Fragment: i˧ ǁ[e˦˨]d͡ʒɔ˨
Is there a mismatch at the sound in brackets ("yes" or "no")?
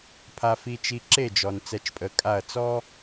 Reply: no